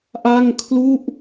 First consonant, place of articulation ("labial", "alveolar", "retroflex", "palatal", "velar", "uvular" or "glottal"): glottal